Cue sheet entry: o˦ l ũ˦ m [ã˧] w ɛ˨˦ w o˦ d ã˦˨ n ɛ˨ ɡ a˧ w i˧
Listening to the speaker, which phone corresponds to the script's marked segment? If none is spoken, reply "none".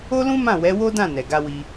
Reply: ã˦˨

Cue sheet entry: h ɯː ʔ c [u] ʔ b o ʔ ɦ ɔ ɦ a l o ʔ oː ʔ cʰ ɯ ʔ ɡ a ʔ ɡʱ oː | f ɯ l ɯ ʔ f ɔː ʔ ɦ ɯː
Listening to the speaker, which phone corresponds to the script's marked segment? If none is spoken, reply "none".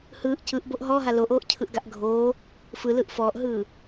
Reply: ɯ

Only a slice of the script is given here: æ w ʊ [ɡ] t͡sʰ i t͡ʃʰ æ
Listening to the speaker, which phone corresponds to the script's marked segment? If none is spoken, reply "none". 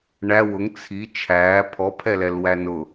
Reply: ŋ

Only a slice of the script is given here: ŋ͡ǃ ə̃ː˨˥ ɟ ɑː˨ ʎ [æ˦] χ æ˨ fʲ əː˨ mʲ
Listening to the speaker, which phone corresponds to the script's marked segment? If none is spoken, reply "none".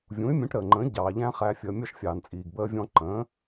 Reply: æ̃˦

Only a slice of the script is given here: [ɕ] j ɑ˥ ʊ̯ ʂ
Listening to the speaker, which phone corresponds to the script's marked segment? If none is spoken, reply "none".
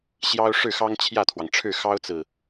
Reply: ɕ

